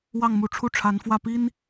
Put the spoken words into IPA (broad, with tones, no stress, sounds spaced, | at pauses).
w ɑ˥˩ ŋ m u˧˥ ʈ͡ʂʰ u˥˩ ʈ͡ʂʰ a˧˥ n f w ä˥˩ p i˥ n